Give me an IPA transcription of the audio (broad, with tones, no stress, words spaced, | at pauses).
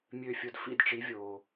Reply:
mʲø˥˩fʲʊ˥˩d fḭ˥˩dʈ͡ʂi˩˥vʲoː˩